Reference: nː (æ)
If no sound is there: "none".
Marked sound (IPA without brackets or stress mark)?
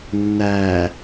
æ